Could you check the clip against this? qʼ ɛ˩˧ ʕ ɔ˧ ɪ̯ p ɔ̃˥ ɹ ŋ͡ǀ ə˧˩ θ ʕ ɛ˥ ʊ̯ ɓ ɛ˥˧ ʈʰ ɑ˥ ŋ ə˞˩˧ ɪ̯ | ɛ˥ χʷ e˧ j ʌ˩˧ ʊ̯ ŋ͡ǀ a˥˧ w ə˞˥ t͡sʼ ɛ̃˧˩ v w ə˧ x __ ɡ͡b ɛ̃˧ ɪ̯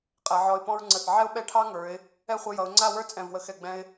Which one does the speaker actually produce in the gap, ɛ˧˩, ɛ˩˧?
ɛ˧˩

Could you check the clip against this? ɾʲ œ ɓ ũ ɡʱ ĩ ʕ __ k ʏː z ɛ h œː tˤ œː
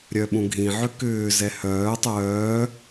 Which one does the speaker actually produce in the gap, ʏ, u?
ʏ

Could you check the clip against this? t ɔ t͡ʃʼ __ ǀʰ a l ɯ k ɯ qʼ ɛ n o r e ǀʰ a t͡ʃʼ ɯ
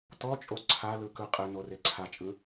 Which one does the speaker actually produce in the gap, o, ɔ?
o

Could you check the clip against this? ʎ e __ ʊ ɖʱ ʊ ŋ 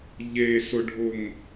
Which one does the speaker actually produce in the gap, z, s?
s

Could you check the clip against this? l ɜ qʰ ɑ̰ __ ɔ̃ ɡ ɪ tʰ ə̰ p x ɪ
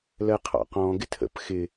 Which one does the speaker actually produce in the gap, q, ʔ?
q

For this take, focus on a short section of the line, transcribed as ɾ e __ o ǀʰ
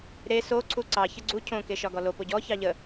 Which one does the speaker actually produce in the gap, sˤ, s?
s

